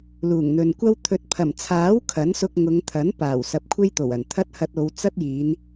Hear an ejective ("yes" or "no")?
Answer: no